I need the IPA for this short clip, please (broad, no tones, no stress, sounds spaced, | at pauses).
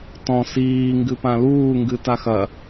t ɔ̃ s iː ŋ ɡ ɨ p ã l uː ŋ ɡ ɨ t a x ɐ